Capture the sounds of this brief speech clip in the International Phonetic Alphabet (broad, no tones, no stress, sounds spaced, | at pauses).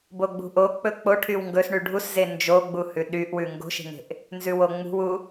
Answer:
b o ɡ͡b ṳ ʔ o k͡p ɵ k͡p o ʈʰ y w ŋ ɡ ɵ s ɳ y ɖʱ u s z e n d͡ʒ o ɡ͡b u h ʉ ɗ y ʔ w ʉ ŋ ɡ o̤ ʃ e̤ ŋ e̤ ʔ | n z ʉ w o ŋ͡m ṳ w u